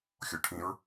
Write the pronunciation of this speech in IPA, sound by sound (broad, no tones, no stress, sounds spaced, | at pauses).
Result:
xʲ o ʈʰ ĩ ɹ